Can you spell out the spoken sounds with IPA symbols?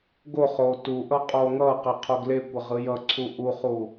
ɡ o χ oː t u ʔ ʌ qʼ oː ŋ ʌː q e qʰ o ɡ l e kʷ ʌ ʁ ɯ j ʌ ǀʰ u ʔ u χ u

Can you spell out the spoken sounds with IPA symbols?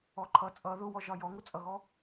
ɔ ǃʰ ʌ t͡sʼ ʌ ð ʊ w ɔ ʒ ɒ j ɔ ŋ ʊ t͡sʼ ʌ ɣ ɔ

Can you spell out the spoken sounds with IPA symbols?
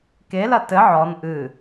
k e l ɐ t ɘ ʕ ɔ n ʔ ɨ

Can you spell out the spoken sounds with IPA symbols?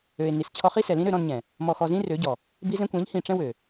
ø˨ e̯ n i˨ s t͡ɕʰ ɔ˧ χ i˦ s ɛ˨ l ĩ˦ ɾ ø˧ ɾ ɔ̃˧ n ɲ ɛ̃˨ | m ɔ˨ x ɔ˨ z ĩ˦ r ø˨˦ ɟ ɔ˨ | b i˧ z ɛ̃˧ kʷ ɛ̃˨˦ ʎ h ĩ˨ ʈ͡ʂ ɛ̃˧ w ø˨

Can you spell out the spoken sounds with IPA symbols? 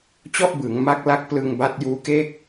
t͡ɕ ɔ˥˩ ʔ b ɯː˩˦ ŋ m a˦˥ k̚ l a˥˩ k̚ p l ɯ˧ ŋ b a˦˥ t̚ j uː˦˥ k e˥˩ k̚

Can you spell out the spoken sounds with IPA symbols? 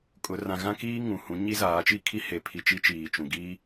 kʼ ʊ˨˦ r ã˨ ɣ ã˦ k iː˦ ŋ ũ˨ h ũ˨˦ ɲ i˦ z aː˨˦ t͡ʃ i˦ kʰ i˦ h e˨ pʰ i˨ t͡ʃ i˦ t͡ʃ iː˨ t͡ʃ ũ˨ ɡ iː˦

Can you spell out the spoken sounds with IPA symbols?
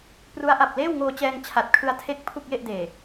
p r u˦˥ a̯ ʔ a˨˩ p̚ l eː˥˩ w ŋ oː˧ t͡ɕ ɛː˧ ŋ t͡ɕʰ a˨˩ t̚ kʰ ɯ˧ a̯ tʰ e˦˥ k̚ pʰ u˥˩ k̚ j e˥˩ ʔ d eː˨˩

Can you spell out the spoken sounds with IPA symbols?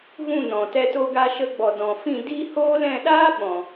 ɣ ũ˦˨ n ɔ̃˨ t ɛ˧ t o˧ ɡ a˧ ʃ ə˧ ɡ͡b ɔ˨ d ɔ̃˨ f ĩ˦˨ d iː˦ h oː˦ l ɛ̃˦˨ ɗ aː˦ ɓ ɔ̃˨

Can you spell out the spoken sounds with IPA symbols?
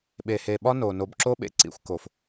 ɓ e˨ h e˨ ɓ ɒ˦ n o˨ n o˨ b ǁ o˦ ɓ ḛ˦ ǀ ḭ˨ xʷ k o˨ f

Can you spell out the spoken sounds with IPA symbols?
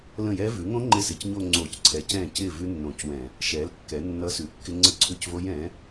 l ə̃˥˩ j ɛ˦˥ v ʉ˩˥ ŋ õ˦˥ ŋ͡ǃ ɪ˥˩ s ɪ˧˩˧ c ɲ o˥˧ ŋ͡ǀ o˧˩˧ c ǀʰ ɛ˩˥ c ɛ̃˥˩ c ɪ˥˩ v ʉ˦˥ nː õ˧˩˧ c w ɛ̃˧˩˧ | ʃ ɛ˩˥ l kː ɛ˩˥ nː ʌ˦˥ s ʉ˩˥ kː ɪ˦˥ ŋ͡ǀ ə˦˥ ǀʰ ʉ˥˩ c v o˦˥ j ɛ̃˩˥

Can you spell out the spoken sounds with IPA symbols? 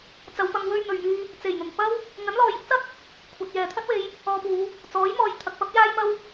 t͡s ɐ˨˧ w p ɐ˧ ŋ w ɵ˧ ɥ n̪ ɵ˨ ɥ m yː˧ | t͡s e˨˩ j n̪ ʊ˨˩ ŋ p ɐ˥ w | ŋ ɐ˨˥ n l ɔː˨ j ɪ˨˥ k̚ t͡s ɐ˥ t̚ | kʷʰ ɐ˨ t̚ j ɛː˨ t̪ʰ ɐ˥ t̚ w e˧ j | ɔː˧ p uː˨˧ | t͡s ɔː˨˥ j m ɔː˨˧ j t̪ʰ ɐ˨ k̚ p ɐ˥ p̚ j aː˥ j m ɐ˥ w

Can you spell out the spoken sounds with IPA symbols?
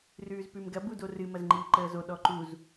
r ʉː z p ʉ m ɡ ɐ b u d o r ɨ m ɐ z ŋ͡ǃ iː ǃ əː z o ɗ ɔ ǃ u z

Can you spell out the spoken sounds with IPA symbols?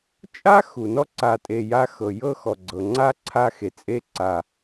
t͡ʃʼ a˥ x u˩ n ɔ˦ ǀ a˨ tʼ e˨ j a˦ x ɤ˩ j ɤ˦ x ɔ˩ ɡ͡ǀ ɤ˩ ŋ͡ǀ a˦ ǀʰ a˦ x e˩ t͡sʼ e˥ ǀ a˨

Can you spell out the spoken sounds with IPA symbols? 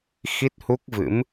x i˦˥ t̚ h u˦˥ k̚ v ɨ̰˧˥ m

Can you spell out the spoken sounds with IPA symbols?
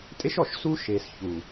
tʼ e˦ ʃ ɔ˨ ʃ s uː˦ ʃ eː˨ s ç uː˨

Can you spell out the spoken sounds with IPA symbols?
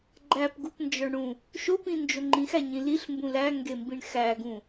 ɡ͡ǃ æ p ɡ u p n d͡ʒ ɒ ɳ ɽ ũ | ʃ o p ĩ n d͡ʒ o ŋ͡ǃ ĩ x æ ɲ ĩ l i ɬ m b ũ l æ ŋ ɡ e m b ĩ ɳ x æ ɡ ũ

